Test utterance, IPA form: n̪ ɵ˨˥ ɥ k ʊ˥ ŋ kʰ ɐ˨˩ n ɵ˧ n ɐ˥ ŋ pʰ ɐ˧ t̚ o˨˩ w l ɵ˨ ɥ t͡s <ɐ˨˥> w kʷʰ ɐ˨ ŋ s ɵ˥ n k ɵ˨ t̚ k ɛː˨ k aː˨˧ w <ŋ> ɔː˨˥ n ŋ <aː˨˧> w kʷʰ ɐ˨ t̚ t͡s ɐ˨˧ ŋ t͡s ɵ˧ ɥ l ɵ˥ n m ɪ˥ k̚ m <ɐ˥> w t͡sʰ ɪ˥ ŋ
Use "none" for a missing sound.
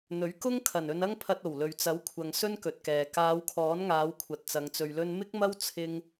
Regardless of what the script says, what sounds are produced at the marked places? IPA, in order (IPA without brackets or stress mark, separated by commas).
ɐ˨˥, kʰ, aː˨˧, ɐ˥